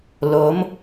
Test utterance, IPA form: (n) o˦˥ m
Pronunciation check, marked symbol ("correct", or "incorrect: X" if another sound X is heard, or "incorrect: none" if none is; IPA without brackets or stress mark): incorrect: l